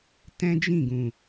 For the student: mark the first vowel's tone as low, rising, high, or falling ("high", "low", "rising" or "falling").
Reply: high